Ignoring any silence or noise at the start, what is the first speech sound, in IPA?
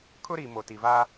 kʰ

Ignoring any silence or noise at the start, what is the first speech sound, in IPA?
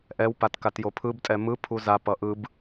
ʔ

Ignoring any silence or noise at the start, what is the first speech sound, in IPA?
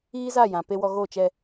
iː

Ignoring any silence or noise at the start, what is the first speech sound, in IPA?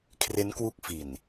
kʰ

